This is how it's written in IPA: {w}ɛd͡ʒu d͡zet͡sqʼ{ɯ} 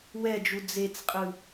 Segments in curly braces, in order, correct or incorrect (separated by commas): correct, correct